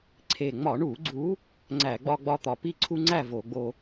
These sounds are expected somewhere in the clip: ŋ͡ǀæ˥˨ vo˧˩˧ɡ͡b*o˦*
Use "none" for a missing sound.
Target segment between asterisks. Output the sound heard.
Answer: o˦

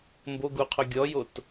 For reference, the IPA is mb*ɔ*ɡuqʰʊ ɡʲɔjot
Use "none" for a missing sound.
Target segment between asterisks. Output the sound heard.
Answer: o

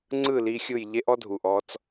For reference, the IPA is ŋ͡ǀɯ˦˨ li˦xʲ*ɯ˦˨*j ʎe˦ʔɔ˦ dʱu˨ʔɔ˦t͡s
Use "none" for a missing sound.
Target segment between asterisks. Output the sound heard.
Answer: ɯ˦˨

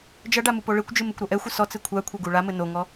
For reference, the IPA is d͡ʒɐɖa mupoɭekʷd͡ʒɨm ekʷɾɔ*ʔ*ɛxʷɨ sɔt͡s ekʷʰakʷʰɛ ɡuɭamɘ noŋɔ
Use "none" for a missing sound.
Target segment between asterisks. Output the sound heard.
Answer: ʔ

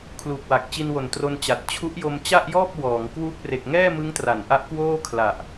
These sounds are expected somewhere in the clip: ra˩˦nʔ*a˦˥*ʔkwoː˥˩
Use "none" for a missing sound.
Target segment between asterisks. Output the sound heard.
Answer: a˦˥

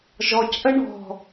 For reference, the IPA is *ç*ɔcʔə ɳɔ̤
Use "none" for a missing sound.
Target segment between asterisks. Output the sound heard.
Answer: ʒ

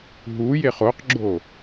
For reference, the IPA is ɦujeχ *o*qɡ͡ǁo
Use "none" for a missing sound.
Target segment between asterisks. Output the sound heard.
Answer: o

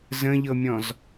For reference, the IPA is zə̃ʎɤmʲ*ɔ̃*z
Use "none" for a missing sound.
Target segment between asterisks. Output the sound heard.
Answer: ɔ̃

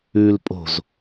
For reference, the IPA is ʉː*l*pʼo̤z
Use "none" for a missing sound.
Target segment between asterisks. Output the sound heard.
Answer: l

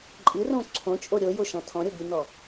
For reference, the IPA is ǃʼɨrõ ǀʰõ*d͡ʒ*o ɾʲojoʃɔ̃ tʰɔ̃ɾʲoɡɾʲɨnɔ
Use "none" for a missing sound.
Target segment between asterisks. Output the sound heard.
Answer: t͡ʃʼ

